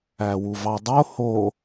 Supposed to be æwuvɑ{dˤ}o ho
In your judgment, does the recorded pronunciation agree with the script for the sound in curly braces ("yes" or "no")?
yes